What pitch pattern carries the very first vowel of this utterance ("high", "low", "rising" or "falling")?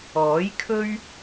rising